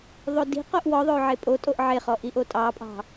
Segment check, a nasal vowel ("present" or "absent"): absent